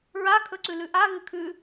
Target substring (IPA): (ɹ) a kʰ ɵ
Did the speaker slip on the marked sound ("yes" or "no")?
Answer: no